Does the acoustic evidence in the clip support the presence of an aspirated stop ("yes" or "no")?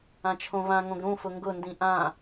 yes